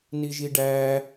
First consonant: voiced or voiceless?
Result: voiced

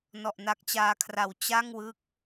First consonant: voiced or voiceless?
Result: voiced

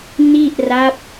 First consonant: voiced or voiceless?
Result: voiced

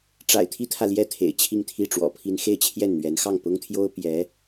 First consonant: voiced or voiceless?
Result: voiceless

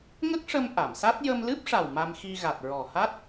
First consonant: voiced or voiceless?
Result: voiced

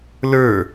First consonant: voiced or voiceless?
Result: voiced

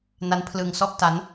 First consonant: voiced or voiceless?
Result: voiced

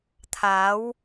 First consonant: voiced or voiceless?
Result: voiceless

